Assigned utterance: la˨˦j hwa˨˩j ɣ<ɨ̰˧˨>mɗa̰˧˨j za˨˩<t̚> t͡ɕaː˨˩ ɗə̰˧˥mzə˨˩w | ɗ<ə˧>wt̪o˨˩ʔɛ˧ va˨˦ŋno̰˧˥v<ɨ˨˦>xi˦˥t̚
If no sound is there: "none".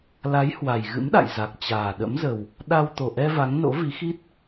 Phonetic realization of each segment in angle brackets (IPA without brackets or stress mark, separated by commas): ɨ̰˧˥, k̚, a˧, i˨˦